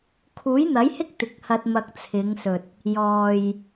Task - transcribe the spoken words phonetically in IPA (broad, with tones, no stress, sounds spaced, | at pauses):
kʰ uː˨˥ j n̪ ɐ˨˥ j h ɪ˥ k̚ t̪ ɪ˨ k̚ h ɐ˧ t̚ m ɐ˧ k̚ t͡sʰ ɪ˨˧ ŋ s ɵ˨ t̚ | j ɔː˨ j